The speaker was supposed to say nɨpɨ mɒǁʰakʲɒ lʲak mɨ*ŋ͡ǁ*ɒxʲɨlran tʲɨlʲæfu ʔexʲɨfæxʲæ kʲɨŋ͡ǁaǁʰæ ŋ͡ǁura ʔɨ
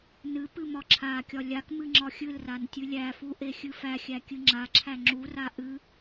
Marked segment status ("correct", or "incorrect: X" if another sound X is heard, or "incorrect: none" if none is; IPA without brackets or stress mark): correct